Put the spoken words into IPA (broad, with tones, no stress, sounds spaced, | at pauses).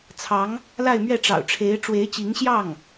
t͡sʰ ɑ˧˥ ŋ | l a˥˧ ɪ̯ m ɥ ɛ˥˩ ʈ͡ʂ ɑ̰˨˩ ʊ̯ ʈ͡ʂʰ e˧˥ ɪ̯ ʈ͡ʂ w e˧˥ ɪ̯ t͡ɕ i˧˥ ŋ ɕ j ɑ˥˩ ŋ